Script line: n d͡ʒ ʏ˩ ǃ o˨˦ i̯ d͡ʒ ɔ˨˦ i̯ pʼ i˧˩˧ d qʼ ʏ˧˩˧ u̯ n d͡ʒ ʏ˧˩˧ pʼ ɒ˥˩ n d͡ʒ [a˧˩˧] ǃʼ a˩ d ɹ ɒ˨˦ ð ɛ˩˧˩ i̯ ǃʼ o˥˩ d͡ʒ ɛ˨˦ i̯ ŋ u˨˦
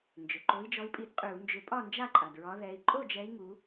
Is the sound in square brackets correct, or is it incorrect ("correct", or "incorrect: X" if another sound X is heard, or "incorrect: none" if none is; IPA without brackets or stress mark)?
incorrect: a˥˩